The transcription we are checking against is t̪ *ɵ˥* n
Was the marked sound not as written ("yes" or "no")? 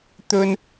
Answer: no